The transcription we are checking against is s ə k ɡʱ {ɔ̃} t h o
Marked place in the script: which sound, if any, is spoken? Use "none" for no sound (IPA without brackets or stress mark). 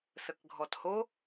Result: ɔ